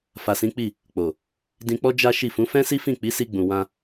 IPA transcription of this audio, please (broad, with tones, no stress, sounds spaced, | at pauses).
f a˨ s ĩ˨˦ k͡p i˦˨ | k͡p o˨ | d ĩ˧ k͡p ɔ˦ d͡ʒ a˦ ʃ i˦˨ f ũ˨˦ f ɛ̃˦ s i˦ f ĩ˦˨ k͡p i˨˦ s i˧ ɡ͡b ũ˨ w ã˧